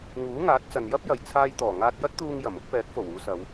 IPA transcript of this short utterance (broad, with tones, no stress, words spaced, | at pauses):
ŋuː˨˥ŋaː˨˥t̚ t͡sɐ˨njɐ˥p̚ jɐ˨jt͡sʰaː˧jt̪ɔː˨˩ ŋaː˧t̚jɐ˥t̚t̪uː˧ŋjɐ˨˩m ʊ˨˥k̚pɛː˨˥k̚fo˨˩w uː˨˧sɐ˨˧w